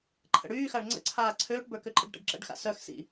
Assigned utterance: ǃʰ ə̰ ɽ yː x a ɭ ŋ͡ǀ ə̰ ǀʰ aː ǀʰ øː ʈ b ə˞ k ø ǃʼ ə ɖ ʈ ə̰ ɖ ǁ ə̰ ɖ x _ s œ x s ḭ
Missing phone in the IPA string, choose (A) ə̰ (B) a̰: B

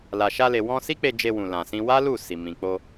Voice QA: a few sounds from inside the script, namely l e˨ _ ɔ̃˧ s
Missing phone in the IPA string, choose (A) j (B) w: B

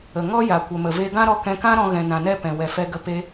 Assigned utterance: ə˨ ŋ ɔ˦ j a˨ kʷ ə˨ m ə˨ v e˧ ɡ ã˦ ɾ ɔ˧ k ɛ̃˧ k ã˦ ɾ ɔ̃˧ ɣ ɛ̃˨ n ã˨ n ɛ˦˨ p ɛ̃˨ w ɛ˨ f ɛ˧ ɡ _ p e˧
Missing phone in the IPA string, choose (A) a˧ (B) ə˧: B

